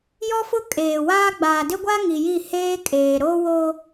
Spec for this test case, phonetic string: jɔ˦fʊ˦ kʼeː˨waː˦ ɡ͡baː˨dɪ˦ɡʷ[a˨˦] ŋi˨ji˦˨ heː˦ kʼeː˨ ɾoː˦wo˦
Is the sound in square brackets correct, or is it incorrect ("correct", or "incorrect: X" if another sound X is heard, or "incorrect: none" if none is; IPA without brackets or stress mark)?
incorrect: a˦